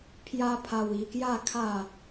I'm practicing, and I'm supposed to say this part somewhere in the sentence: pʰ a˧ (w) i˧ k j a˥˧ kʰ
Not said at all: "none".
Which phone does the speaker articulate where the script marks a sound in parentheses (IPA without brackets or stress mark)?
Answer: w